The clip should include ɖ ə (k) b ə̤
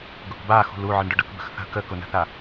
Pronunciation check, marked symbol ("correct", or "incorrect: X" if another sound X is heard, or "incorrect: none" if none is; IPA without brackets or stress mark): correct